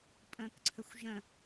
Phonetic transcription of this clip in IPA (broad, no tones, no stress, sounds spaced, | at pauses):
pʼ ə̃ː k ǀʰ ə xʷ ʒ ə̃